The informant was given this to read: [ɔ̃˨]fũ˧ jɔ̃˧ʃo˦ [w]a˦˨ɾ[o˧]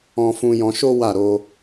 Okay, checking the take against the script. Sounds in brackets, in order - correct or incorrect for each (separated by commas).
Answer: incorrect, correct, correct